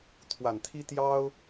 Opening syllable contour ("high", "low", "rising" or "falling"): low